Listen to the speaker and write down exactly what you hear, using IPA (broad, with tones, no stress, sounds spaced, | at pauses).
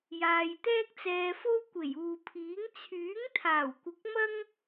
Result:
j aː˨ j t̪ ɛː˥ k̚ t͡s ɛː˧ f o˥ w kʷ e˨˩ j uː˨ pʰ iː˨˥ ŋ t͡sʰ yː˨˥ ŋ t̪ʰ aː˨˩ w kʷ ɪ˨˥ k̚ m ɐ˥ ŋ